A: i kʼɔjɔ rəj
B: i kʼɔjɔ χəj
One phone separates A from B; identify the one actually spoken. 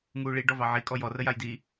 A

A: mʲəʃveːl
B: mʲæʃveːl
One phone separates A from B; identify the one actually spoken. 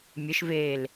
A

